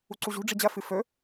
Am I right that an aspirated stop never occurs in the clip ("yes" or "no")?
yes